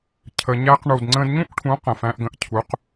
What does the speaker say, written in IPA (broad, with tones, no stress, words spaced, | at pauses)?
cʰə˨ɲæ˧qɳu˨d ŋ͡ǀə̃ː˧dɲũ˦ʔʈʰũ˨˦ qə̃˨fæ̃˧ʔɡə̃˧ʔ cʰu˨˦q